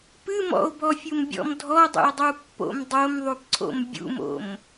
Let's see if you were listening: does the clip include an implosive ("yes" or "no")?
no